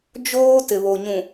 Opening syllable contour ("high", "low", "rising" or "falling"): high